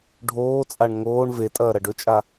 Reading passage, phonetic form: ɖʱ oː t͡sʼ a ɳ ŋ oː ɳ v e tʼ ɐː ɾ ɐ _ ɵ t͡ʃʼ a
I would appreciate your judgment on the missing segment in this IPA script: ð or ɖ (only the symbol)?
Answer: ɖ